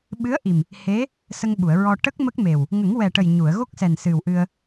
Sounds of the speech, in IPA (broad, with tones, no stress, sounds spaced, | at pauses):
ɓ ɨ˧˥ ə̯ ʔ i˨˩ m | h e˧˥ | s ə˧ ŋ ɓ u˨˩˨ ə̯ ɹ ɔ˧ ʈ ə˦˥ k̚ m ə˦˥ k̚ m e˨˩ w | ŋ ə˨˩˦ ŋ w ɛ˨˩ ʈ ə˨˩ j ɲ u˨˩˨ ə̯ ɣ o˦˥ k̚ s ɛ˨˩ n s ɨ˨˩ w ʔ ɨ˧ ə̯